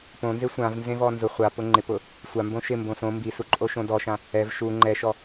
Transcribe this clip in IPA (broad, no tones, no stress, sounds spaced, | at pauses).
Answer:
p õ n z e sʷ ã v n z ẽ v ɔ n z ʊ χʷ a p ʊ ŋ͡ǃ ɪ p ʊ | sʷ a m b õ ʃ ɪ m b õ s õ m b i s u ǃʼ o ʃ õ d ɔ ʃ ã | ɛ v ʃ u ŋ͡ǃ ɛ ʃ ɔ